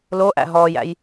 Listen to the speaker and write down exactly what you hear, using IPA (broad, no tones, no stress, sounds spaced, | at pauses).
l o ʔ æ̰ ɦ ɔː j æ̰ j